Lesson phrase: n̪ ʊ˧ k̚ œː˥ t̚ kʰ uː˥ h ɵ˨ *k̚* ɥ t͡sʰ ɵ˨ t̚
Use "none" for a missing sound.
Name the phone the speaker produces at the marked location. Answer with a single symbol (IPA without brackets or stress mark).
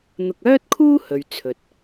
none